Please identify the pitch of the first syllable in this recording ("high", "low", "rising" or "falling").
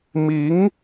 rising